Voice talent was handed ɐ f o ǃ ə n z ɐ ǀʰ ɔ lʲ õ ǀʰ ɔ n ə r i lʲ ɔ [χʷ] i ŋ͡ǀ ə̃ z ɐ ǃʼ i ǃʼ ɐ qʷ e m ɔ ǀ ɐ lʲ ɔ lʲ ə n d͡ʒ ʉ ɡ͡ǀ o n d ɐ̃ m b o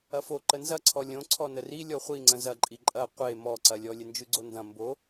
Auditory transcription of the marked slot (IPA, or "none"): χʷ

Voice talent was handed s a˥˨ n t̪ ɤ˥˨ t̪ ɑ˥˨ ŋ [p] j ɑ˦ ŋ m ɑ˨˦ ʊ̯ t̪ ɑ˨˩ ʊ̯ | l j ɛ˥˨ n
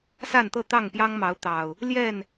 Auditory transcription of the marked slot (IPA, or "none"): p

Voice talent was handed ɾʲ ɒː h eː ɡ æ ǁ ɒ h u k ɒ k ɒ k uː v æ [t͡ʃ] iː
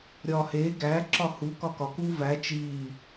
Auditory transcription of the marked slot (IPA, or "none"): t͡ʃ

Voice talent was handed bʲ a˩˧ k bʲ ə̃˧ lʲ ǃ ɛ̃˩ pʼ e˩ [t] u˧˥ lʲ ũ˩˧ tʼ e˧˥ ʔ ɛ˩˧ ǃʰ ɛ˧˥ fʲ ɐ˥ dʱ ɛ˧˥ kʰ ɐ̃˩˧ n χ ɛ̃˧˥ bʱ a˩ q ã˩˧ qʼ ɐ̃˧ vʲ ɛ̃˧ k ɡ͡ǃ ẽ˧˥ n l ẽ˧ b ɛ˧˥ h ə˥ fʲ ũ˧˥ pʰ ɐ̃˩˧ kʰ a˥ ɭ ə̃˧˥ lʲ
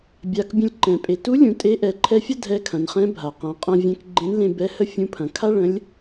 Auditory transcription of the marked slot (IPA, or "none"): t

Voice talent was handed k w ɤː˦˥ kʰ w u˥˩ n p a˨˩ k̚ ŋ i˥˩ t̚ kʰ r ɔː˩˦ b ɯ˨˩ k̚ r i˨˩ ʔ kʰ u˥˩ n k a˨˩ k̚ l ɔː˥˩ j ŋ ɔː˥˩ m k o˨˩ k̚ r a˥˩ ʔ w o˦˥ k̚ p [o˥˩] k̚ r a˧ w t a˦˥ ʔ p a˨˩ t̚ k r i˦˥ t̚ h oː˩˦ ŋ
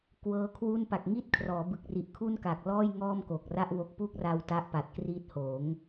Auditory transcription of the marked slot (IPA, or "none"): u˥˩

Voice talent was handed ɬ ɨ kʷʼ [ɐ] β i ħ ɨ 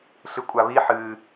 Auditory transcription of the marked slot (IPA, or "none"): a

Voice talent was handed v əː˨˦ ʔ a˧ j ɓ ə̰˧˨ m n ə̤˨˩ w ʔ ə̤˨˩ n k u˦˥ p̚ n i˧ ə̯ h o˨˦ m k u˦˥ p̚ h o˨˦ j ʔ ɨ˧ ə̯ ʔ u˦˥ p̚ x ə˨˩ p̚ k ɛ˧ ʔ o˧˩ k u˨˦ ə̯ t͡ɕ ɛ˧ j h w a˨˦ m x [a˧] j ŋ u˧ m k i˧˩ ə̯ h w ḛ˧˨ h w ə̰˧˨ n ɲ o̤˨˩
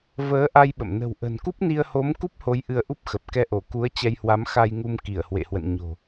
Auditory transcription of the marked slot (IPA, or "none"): a˧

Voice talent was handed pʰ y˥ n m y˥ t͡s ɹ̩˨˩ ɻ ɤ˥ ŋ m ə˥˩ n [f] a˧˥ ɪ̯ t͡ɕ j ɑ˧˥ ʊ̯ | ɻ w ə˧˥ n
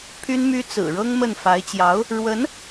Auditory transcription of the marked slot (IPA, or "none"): f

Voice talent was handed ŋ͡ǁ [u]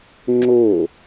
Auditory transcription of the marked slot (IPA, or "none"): o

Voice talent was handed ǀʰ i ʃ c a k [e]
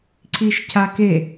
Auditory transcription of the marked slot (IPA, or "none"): e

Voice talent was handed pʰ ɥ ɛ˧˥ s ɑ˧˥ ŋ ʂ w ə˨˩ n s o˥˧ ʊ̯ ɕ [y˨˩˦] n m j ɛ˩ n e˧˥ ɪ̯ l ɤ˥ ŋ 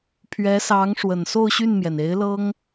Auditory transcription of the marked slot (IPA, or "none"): y˥˩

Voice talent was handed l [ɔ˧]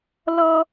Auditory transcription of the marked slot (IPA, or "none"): ɔ˧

